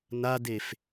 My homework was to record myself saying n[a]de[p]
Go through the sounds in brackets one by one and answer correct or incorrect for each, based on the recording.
correct, incorrect

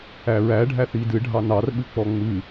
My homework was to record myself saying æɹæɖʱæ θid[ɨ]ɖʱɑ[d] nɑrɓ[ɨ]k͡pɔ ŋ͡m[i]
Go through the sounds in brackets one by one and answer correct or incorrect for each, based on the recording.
correct, incorrect, correct, incorrect

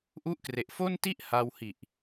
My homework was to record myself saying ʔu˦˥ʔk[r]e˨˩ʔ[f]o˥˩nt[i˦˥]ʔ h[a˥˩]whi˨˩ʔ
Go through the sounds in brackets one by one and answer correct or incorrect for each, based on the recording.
correct, correct, incorrect, incorrect

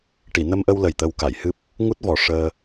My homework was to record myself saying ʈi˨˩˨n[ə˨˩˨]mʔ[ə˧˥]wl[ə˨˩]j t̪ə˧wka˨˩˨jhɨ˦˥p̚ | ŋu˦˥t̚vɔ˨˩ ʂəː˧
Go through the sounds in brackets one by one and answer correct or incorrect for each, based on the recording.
incorrect, incorrect, correct

